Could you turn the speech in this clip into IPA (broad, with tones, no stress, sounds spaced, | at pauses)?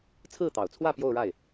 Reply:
t͡sʰ ɹ̩˥˩ t̪ ɑ˨˩ ʊ̯ t͡sʰ w ä˥˧ p j o˥˧ ʊ̯ ɻ a˥˩ ɪ̯